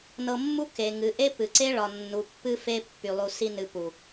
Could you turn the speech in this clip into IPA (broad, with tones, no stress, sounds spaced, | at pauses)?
n ɤ˧ mː u˦ k e˨ ŋ ɨ˨ ʔ e˦ p ɨ˨ ǀ e˦ ɭ ɒ˨ nː u˨ pː ɨ˧ f e˧ pː y˨ lˠ u˨ s i˧ n ɨ˨ p u˨